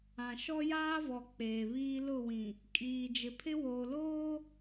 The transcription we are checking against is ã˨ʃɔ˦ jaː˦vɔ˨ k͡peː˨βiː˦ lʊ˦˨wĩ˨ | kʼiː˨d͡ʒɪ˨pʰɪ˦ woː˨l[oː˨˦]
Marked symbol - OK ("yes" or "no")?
no